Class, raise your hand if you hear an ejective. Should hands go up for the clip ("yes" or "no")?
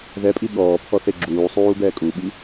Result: yes